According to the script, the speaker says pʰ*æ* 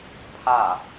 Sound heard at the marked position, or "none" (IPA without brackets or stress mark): a